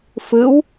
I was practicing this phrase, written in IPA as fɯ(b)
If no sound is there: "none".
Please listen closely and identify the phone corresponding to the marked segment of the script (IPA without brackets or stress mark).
w